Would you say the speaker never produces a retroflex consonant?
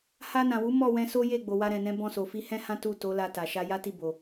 yes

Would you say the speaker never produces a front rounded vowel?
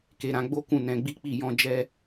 yes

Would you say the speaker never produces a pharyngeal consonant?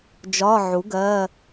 no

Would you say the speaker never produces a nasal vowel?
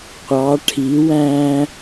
no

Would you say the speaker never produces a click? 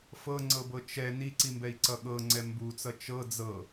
no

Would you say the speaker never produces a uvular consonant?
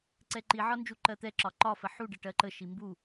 yes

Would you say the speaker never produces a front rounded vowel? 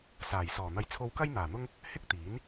yes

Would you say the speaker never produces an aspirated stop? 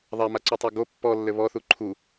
no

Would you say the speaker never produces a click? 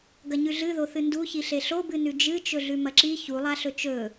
no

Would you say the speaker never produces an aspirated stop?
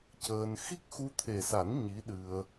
no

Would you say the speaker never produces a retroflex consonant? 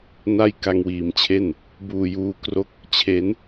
yes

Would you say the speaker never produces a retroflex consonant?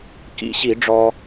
no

